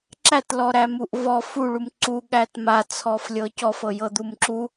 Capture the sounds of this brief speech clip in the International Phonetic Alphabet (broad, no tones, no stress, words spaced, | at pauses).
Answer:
ǁætlɔɾæmuʔ vɔ fuɭum ǀuɠæt mat͡sʰɔflʲɤ cɔfɤjɤd̪um ǁu